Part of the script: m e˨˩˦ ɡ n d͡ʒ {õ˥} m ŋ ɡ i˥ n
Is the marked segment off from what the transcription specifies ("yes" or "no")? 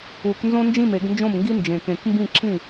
yes